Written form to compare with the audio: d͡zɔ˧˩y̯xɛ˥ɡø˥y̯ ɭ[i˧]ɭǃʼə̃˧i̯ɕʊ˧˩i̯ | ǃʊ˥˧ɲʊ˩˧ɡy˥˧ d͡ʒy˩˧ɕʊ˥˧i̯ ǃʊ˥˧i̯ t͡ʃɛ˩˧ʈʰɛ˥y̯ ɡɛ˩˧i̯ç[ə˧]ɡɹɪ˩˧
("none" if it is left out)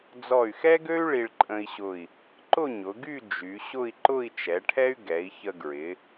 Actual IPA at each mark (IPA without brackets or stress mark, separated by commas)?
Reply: i˧, ə˧